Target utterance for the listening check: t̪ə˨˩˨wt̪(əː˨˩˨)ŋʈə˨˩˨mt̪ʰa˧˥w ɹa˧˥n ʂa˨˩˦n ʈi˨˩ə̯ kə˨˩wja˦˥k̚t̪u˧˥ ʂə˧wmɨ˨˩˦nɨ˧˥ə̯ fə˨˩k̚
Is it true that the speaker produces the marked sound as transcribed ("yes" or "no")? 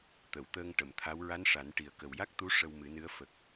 no